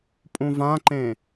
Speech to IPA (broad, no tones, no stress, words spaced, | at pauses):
pʼũvãǃẽ